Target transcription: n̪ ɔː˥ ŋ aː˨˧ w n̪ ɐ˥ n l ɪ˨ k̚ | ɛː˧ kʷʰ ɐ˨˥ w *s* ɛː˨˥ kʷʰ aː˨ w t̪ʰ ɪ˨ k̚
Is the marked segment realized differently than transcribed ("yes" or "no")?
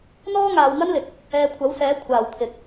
no